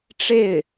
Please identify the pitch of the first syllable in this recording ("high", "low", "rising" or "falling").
falling